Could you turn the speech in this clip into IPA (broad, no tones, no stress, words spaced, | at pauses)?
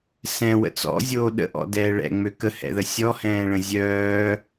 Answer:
sɛ̃wə̰ t͡sɔ̰zʲoː ɗə̰ʔɔ̰dɛː ɭɛ̰ŋ͡mø kəhɛ̰ðə sʲɔhɛ̃ːɭə̃ zʲœː